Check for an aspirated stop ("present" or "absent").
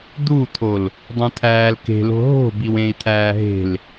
present